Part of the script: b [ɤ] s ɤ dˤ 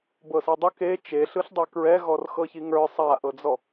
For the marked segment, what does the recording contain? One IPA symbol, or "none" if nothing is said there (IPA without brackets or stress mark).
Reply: ɤ